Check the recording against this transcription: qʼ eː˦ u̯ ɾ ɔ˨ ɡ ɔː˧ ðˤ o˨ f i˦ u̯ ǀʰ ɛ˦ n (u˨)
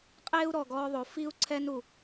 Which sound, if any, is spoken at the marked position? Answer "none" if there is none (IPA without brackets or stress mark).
u˨